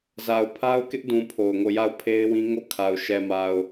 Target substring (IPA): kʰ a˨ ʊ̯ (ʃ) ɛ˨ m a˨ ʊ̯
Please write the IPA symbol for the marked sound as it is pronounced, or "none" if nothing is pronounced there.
ʃ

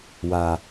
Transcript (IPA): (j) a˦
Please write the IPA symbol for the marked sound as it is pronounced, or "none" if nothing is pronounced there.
w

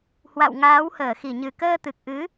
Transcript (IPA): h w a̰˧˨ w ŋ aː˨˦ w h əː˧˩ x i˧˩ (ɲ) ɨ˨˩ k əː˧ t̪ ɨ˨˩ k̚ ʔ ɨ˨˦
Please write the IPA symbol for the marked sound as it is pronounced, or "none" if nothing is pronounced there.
ɲ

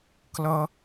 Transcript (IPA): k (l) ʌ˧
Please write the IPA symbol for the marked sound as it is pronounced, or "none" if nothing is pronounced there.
l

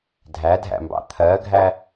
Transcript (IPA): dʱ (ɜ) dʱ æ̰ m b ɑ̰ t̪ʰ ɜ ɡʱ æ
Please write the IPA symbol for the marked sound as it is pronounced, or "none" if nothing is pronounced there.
æ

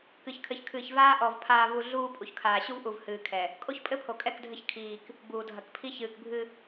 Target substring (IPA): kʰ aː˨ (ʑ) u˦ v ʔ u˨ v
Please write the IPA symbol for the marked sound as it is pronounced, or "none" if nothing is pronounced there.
ɕ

